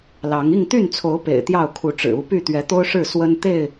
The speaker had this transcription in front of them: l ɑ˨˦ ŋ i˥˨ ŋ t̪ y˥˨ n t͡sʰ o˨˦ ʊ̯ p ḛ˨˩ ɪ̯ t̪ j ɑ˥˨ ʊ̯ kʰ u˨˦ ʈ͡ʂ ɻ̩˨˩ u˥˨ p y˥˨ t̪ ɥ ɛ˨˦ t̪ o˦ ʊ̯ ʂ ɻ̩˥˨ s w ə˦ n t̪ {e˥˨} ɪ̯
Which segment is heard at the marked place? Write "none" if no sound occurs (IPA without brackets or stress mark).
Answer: e˥˨